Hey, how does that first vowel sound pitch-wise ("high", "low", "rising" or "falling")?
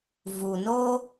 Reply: low